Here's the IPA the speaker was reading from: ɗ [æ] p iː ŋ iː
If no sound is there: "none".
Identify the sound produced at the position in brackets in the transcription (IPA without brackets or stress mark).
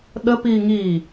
ə